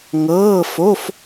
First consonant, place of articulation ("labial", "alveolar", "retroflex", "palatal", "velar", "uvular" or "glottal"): velar